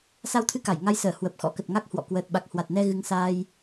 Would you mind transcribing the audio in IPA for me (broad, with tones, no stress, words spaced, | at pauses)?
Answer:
sa˧wt̪ʰɨ˧ka˧˩j ŋa˧jsəː˧˩ hwə˨˩p̚xɔ̰˧˥kə˨˩t̚ŋa˦˥k̚ hwɔ̰˧˨ kwəː˨˩t̚ɓa˨˩k̚hwa˨˩t̚nɛ˧ ɣɨ˨˦ŋsaː˧j